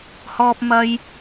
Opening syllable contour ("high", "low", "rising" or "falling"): high